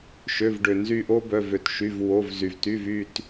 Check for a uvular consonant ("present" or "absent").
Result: absent